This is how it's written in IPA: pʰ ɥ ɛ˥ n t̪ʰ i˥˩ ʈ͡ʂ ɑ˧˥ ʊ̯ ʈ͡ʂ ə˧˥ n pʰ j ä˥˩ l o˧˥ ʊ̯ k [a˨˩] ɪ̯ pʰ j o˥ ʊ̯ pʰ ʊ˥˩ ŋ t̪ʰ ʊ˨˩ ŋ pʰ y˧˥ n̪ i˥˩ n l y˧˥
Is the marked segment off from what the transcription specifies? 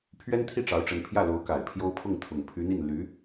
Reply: no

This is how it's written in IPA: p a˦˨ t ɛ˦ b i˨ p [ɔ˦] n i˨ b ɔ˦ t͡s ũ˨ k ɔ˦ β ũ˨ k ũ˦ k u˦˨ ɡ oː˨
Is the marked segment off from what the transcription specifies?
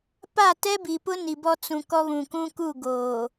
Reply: yes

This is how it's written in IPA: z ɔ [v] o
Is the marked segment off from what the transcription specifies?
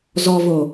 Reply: no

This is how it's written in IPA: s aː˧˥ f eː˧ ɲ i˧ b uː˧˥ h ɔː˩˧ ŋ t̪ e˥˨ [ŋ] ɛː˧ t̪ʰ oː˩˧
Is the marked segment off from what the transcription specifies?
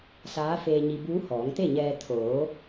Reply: yes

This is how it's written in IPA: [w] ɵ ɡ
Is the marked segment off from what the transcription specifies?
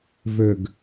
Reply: yes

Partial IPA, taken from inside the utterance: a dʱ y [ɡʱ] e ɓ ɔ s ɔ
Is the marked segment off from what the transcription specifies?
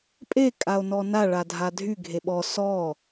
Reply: no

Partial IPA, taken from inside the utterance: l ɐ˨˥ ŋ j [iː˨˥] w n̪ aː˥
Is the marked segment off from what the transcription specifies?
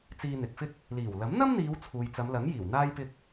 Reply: yes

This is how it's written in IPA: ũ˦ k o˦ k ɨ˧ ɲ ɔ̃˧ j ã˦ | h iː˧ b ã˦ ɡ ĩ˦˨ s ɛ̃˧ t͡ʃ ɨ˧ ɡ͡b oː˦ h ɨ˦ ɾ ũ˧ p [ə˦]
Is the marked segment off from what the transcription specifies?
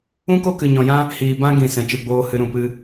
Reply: yes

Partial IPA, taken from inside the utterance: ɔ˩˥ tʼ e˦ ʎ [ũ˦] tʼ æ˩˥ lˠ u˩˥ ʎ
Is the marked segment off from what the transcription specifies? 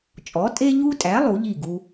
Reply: yes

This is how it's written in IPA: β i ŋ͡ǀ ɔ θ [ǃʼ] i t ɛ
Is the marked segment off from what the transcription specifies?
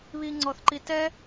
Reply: yes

